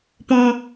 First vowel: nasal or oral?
nasal